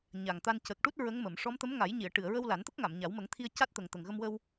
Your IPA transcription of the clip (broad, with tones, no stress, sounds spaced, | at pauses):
ɲ a˨˩ ŋ t̪ a˧ n c ə˨˩ k̚ ʈ u˦˥ t̚ ɹ ə˧˥ ŋ m ə˨˩˨ m ʂ ɔ˧˥ m t̪ ə˧˥ m ŋ a˨˩˦ j ɲ i˨˩˨ ə̯ ʈ ɨ˨˩˨ ə̯ ɹ ə˧ w l a˨˩˦ n t̪ ə˦˥ k̚ ŋ a˨˩˨ m ɲ a˨˩˦ w m ə˨˩˦ ŋ t̪ʰ i˧ ə̯ c a˦˥ t̚ t̪ ə˨˩ ŋ t̪ ə˨˩ ŋ ɣ ə˧ m w ə˧ w